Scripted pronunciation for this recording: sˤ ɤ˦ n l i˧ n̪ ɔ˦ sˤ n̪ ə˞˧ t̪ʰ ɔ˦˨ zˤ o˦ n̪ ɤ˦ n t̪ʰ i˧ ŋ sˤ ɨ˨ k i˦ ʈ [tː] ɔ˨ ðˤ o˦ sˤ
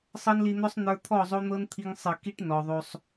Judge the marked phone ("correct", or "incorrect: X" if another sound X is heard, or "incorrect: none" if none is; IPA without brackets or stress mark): incorrect: n